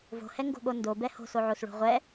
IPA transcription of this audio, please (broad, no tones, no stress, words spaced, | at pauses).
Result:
vo̤hɛŋɡo̤ɠo ndobɛ ho̤soʕosɭo̤ ʁʷɛ